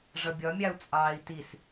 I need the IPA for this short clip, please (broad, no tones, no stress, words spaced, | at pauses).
ʐʌbʲɒmʲɑu̯ t͡sʼɑːi̯tis